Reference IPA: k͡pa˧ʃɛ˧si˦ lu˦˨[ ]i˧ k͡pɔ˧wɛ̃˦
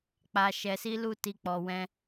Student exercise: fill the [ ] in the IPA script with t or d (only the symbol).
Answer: t